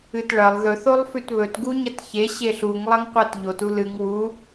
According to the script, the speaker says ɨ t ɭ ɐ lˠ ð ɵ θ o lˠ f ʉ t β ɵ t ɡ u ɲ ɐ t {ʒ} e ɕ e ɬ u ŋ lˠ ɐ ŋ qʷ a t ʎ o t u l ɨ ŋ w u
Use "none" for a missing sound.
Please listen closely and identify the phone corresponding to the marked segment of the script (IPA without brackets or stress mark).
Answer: ç